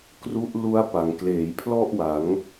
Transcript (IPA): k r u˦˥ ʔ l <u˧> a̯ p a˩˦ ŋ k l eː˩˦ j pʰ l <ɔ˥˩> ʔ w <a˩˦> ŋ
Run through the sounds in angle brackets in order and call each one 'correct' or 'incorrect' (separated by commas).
incorrect, correct, correct